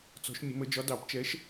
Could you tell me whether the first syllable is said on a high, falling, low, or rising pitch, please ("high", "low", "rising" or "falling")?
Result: rising